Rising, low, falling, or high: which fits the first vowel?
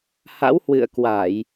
rising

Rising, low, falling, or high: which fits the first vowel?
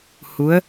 rising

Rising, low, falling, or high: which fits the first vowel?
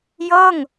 falling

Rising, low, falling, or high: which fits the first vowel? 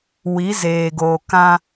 rising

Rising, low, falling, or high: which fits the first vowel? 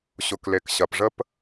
low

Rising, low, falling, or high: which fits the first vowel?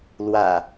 low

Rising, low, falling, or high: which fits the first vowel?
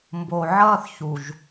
low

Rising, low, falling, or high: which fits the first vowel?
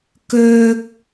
high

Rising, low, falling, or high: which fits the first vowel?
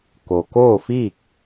low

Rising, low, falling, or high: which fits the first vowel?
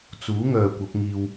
rising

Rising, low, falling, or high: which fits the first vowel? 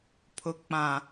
low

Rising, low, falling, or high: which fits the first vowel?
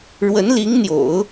rising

